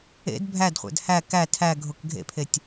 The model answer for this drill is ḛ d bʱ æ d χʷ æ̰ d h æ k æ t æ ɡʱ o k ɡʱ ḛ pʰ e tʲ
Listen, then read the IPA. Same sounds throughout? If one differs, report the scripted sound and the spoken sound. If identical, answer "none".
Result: t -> tʰ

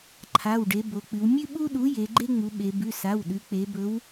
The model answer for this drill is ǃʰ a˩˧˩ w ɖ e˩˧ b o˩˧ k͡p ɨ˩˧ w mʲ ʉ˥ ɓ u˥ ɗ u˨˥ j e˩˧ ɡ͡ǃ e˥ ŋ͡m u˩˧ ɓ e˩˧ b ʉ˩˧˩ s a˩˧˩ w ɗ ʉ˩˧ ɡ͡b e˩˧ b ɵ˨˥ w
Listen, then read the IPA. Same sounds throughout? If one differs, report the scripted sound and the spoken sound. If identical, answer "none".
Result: ɡ͡b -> k͡p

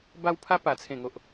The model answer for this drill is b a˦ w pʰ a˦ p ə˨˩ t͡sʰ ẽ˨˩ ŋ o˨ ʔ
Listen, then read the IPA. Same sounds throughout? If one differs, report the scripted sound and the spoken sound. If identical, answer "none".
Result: ə˨˩ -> a˨˩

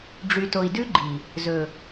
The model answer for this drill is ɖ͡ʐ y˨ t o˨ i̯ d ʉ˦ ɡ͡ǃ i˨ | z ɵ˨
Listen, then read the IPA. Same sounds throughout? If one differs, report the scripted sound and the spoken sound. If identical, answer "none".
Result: none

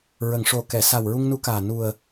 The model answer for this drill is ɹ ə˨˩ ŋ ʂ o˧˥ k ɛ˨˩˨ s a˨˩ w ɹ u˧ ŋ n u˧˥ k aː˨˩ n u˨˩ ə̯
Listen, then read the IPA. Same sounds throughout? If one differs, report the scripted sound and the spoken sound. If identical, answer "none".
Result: o˧˥ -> o˨˩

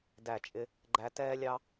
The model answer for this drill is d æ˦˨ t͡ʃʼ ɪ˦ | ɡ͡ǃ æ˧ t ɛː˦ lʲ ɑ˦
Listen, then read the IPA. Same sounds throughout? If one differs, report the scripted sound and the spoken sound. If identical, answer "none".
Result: none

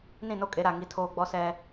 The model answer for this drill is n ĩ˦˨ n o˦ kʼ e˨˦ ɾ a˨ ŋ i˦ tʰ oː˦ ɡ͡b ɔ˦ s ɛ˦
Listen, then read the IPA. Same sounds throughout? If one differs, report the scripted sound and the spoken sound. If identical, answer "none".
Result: none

